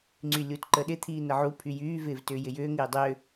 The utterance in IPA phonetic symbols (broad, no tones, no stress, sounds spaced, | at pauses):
ŋ͡ǀ y lʲ u t ǃ ə ɗ ɪ t̪ʰ iː n ə ʕ u pʰ y j yː v ɪː v t ʏː j ɪ j ʏː ŋ ɪː dˤ ʏː